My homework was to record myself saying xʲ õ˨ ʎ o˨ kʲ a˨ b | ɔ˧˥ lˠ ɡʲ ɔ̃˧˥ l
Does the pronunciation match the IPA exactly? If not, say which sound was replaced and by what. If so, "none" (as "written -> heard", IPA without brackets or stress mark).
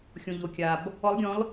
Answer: none